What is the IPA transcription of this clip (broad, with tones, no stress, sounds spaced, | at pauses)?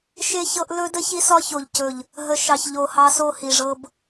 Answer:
ʃ e˦ ç ɤ˦ ʔ l ɵ˦ d ə˦ ç i˦ s ɒ˦ ç o˨ ʎ c ɵ˨ ʎ | ɦ ə˨ ʃ ɑ˨ ç ʎ o˨ h ɑ˦ s o˦ h i˨ ʐ ɤ˦ b